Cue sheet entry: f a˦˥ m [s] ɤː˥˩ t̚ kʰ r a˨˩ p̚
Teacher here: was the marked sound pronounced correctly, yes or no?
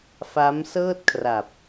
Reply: yes